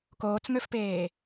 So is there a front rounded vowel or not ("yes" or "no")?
yes